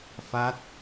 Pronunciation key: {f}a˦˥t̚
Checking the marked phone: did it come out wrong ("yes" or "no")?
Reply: no